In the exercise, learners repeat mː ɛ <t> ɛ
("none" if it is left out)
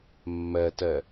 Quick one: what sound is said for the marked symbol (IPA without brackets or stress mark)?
t